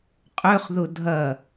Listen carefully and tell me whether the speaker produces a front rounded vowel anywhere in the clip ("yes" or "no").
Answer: yes